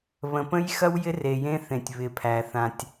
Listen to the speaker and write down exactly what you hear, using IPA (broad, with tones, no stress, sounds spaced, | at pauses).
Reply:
β ə̃˨ p ə̃˦ j x ɐ˦ w j ɪ˦ r e˨ j ẽ˦ θ ẽ˨ tʲ β ɪ˨ pʰ æ˨ θ ã˨ tʲ